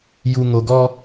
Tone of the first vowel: low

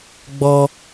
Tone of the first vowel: high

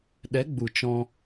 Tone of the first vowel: rising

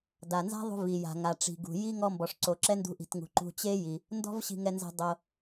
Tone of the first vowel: low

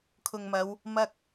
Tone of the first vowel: low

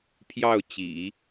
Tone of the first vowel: falling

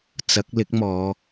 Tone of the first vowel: rising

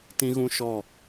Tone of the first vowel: high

